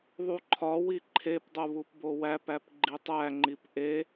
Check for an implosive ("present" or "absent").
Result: absent